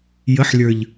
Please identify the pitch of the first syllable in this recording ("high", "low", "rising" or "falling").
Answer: rising